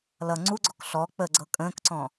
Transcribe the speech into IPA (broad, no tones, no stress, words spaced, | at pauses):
lʌ ŋ͡ǀuɡ͡ǀɔk ɬɔ k͡pəɡ͡ǀɤ kʼə̃ːkǀɔ̃